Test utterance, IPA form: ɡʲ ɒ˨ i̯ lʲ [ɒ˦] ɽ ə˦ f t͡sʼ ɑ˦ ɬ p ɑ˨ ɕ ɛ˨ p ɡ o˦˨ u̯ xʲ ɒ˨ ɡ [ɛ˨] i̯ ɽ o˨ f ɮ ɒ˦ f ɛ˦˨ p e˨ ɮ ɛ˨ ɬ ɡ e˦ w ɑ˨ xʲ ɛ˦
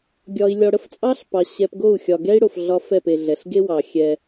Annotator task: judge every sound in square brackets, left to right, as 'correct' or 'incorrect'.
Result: incorrect: ɒ˨, incorrect: ɛ˦

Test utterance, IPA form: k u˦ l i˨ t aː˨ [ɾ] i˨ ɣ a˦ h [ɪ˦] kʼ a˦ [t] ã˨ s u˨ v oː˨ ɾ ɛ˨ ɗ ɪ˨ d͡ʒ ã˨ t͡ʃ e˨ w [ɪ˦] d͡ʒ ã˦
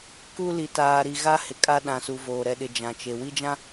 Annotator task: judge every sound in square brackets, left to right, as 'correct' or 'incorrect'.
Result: correct, incorrect: ɪ˨, incorrect: ɗ, incorrect: i˦

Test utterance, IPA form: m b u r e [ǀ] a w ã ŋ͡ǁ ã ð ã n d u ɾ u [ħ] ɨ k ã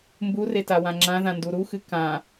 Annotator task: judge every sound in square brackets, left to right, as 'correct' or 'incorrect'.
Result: incorrect: t, incorrect: x

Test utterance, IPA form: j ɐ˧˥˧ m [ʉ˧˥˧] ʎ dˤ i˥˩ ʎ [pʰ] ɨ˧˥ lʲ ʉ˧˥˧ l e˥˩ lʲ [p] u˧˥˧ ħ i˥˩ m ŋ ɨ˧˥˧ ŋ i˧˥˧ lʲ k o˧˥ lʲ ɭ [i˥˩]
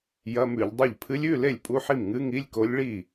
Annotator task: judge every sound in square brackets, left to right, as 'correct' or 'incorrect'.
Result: incorrect: ʉ˧˩˧, correct, incorrect: pʼ, correct

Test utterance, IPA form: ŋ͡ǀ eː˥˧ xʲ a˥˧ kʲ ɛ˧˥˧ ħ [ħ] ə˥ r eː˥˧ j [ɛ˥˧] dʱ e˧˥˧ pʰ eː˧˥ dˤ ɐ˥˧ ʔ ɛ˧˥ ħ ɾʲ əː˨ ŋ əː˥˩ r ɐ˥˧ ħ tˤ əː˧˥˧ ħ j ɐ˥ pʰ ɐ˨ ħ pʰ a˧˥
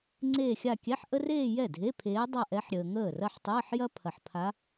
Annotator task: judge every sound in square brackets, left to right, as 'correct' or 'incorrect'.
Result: incorrect: ʔ, incorrect: ɛ˥˩

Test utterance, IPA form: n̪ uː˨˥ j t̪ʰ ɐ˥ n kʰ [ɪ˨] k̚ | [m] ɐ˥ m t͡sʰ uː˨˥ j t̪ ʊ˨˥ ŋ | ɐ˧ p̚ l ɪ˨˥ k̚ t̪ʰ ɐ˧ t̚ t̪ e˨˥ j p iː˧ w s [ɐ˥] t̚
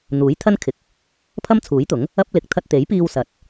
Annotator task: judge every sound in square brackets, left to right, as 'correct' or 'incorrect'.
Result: incorrect: ɪ˨˥, incorrect: pʰ, incorrect: ɐ˨˥

